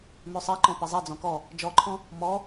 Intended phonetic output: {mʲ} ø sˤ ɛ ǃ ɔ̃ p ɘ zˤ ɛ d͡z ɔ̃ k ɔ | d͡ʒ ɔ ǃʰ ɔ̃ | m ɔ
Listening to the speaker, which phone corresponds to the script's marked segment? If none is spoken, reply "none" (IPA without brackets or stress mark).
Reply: m